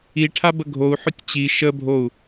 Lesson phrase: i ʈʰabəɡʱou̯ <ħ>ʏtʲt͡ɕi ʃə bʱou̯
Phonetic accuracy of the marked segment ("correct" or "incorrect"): correct